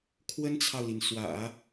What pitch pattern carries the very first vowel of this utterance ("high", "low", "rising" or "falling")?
high